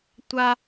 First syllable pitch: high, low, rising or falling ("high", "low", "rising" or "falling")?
high